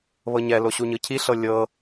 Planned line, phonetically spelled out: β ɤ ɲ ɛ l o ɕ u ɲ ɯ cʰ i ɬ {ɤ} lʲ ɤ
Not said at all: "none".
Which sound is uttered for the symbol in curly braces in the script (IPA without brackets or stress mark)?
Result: ɤ